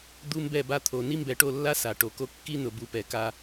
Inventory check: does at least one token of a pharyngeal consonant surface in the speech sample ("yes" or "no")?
no